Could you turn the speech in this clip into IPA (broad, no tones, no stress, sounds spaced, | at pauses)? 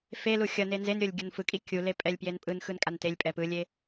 f e l u xʲ ʌ n e n z e n ɾʲ o lʲ ɡʲ ʌ n f ɯ kʼ i kʲ u l e pʼ ɛ lʲ p j e n pʼ ɯ n x ɯ n kʼ a n t e lʲ pʼ ɛ p ɯ lʲ e